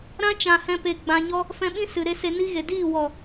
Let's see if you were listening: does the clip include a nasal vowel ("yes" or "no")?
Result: yes